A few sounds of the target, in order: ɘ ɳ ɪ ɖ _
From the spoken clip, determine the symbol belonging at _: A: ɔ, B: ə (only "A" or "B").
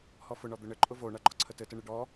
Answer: A